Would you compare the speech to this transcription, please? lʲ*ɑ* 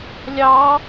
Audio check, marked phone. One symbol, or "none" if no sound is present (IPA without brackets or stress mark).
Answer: ɑ